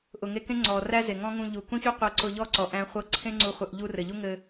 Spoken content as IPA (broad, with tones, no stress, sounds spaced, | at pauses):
ʔ ʊ˨ ŋ e˧ k ẽ˦ ŋ͡ǀ ɔ˨ r æ˦ z e˨ ŋ ɔ̃˦ ŋ ũ˧ ʎ u˨ k ũ˦ ç u˦ qʷ ɤ˧ ǀ ʊ˧ ʎ ɔ˦ ǀ ɔ˨ ʔ æ̃˦ χʷ ɤ˦ ǀʰ ẽ˦ ŋ͡ǀ u˧ χʷ ɘ˧ ʔ ʎ u˧ r ɘ˨ ʎ u˦ ŋ ɘ˧